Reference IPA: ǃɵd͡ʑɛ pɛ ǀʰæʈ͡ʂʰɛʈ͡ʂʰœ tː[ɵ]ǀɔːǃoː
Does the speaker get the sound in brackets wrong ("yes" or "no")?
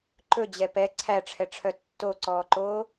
yes